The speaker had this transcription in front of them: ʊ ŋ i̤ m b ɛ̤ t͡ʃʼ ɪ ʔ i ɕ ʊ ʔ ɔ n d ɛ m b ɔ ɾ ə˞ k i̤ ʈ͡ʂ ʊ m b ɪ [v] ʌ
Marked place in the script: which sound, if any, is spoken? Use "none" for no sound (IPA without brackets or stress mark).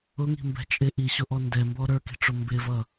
v